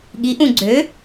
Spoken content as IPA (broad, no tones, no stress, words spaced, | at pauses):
ɠiʔũ ɡ͡ǀø